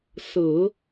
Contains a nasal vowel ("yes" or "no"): no